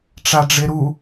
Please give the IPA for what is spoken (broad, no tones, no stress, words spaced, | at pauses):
ʈ͡ʂaɖ͡ʐeɾu